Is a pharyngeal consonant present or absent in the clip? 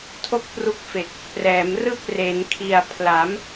absent